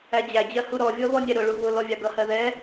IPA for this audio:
æ d͡ʑ æ d͡ʑ ɜ h u ɾ ɔ vʲ ɔ β ɔ nʲ ɛ ɾ ʊ ɭ u β ʊ l ɔ vʲ ɑ ɡ ʌ h ɜ ð ɛ

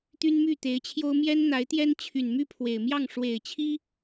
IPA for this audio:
t̪ y˥ n m y˥˩ t̪ e˧˥ ɪ̯ t͡ɕʰ j o˥ ʊ̯ m j ɛ˥ n n̪ a˧˥ ɪ̯ t̪ j ɛ˥ n t͡ɕʰ y˨˩ n m y˥˩ pʰ w e˨˩ ɪ̯ m j ɑ˥˩ ŋ ʂ w e˨˩ ɪ̯ t͡ɕʰ i˥

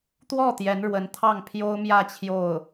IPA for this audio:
t̪ w ɔ˥˩ t̪ j ɛ˧˥ n ɻ w ə˧˥ n t̪ʰ ɑ˥˩ ŋ pʰ j o˥ ʊ̯ m j ä˥˧ t͡ɕʰ j o˥˩ ʊ̯

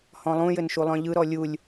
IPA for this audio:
h ɔ̃ lˠ ũ j ɘ n ʃ u lˠ œ̃ ʎ ɯ ɾ ɔ lʲ u lʲ

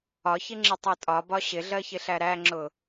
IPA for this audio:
ɒ ç ɪ ŋ͡ǁ ɪ tˤ ɜ tʼ ɒ b ɒ ɕ ɪ ɮ ɜ ç ɪ ɬ æ ɾ æ ŋ͡ǁ ʊ

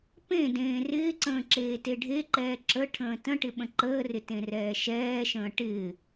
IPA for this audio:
p ẽ d ẽː r ɪː ǀ ə̃ː ǁ eː t e ɖʱ e ǃ ɛː ǁ ə ʈʰ ə̃ː t ə̃ ʈ ɪ ɓ ə̃ ǃ əː r ɪ t ẽ r ɛː ʃ ɛː ʃ ə̃ː ʈ ɪː

